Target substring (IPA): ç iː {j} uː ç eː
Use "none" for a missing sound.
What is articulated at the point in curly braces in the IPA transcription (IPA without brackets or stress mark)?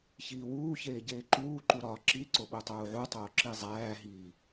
w